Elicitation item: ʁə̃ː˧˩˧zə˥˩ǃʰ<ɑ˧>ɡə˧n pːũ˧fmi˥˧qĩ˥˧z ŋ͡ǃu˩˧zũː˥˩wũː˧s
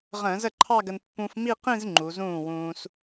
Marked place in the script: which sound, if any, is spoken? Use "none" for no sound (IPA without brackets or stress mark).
ɑ˥˧